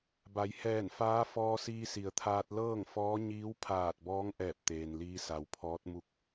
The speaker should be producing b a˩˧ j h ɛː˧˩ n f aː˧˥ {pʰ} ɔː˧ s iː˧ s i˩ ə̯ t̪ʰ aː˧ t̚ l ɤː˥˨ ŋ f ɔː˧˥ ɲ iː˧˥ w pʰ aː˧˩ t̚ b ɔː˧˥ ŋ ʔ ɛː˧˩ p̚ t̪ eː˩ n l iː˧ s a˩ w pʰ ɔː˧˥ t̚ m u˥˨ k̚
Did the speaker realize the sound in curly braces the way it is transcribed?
no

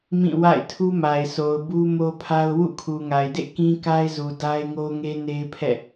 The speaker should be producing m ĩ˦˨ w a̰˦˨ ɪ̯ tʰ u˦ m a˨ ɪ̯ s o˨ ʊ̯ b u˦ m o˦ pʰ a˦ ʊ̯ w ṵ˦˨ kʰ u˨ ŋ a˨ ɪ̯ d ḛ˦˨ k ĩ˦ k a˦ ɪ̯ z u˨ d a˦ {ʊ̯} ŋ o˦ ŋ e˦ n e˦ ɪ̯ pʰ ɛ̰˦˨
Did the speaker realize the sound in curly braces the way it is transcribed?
no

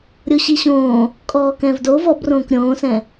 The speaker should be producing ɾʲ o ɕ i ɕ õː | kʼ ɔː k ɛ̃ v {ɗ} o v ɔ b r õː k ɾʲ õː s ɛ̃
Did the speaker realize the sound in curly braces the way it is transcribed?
no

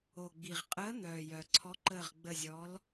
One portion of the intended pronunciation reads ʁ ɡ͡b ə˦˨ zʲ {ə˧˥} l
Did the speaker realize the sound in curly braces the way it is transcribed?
no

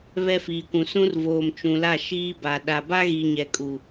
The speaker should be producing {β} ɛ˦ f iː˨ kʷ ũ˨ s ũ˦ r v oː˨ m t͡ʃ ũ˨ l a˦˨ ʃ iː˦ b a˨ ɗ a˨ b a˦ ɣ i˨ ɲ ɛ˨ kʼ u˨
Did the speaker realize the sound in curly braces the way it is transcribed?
yes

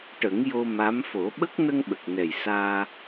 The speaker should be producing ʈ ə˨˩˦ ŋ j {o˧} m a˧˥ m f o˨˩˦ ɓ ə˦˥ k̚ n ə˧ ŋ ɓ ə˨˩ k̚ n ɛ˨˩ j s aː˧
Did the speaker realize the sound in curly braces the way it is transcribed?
yes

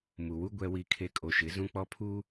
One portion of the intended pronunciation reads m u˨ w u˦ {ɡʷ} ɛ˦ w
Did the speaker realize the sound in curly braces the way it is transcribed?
yes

